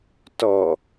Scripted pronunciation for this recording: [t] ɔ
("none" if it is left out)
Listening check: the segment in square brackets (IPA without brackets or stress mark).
t